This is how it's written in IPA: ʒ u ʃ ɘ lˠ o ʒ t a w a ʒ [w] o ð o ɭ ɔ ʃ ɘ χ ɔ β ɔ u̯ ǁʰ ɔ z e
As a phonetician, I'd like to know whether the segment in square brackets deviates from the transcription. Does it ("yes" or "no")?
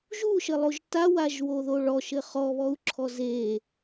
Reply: no